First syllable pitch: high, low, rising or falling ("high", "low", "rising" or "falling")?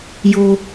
high